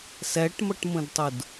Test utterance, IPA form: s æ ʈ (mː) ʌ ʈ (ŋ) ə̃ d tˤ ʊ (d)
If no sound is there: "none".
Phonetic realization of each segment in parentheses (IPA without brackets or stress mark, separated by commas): m, m, d